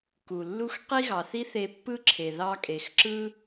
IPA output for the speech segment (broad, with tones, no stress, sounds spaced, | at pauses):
k u˩ lː u˥ x q i˥ ɣ ɑ˩ θ i˥ θ e˧ pː ɯ˥ ǁʰ e˩ ð ɑ˥ kʼ e˩ x ǁ ɯ˥